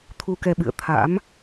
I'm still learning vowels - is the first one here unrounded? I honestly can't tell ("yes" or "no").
no